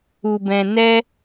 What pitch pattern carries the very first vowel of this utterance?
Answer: low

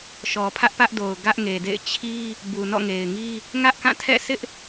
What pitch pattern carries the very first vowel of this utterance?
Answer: low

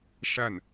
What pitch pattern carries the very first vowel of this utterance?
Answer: falling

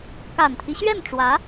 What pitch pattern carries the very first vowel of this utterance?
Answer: low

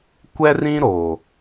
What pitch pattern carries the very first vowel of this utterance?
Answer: high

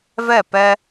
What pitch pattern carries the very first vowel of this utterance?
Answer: falling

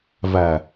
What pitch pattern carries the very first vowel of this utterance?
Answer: low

